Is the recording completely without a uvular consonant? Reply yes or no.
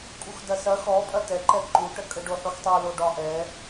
yes